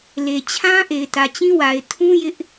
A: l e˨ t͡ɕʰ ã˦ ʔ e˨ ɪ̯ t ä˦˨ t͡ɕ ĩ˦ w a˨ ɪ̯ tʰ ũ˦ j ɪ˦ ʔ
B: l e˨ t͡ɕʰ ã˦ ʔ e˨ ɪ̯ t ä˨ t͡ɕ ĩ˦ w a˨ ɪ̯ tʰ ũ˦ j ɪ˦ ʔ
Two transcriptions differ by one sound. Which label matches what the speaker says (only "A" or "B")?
B